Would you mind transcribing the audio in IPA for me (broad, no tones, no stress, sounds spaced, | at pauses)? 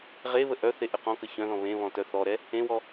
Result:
ʁ e β ə ʔ œ θ e ʔ ə q ɔ̃ k ə ç œ̃ ð ɔ̃ β ẽ β ɔ̃ t œ θ ɔ ɾ ɛ | ẽ w ɔ